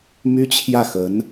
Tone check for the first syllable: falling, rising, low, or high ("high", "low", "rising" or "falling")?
high